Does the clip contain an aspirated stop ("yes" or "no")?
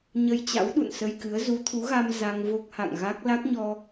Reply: yes